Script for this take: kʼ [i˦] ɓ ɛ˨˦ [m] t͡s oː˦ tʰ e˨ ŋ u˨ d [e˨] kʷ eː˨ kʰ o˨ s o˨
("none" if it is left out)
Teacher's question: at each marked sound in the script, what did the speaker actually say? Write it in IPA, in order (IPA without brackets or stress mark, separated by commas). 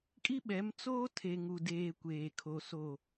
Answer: i˦, m, eː˨